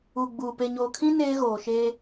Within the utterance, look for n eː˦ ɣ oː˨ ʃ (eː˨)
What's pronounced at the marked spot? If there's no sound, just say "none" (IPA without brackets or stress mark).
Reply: eː˦